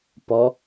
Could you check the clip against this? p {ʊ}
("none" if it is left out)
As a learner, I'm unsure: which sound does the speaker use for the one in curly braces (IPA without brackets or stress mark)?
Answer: ɔ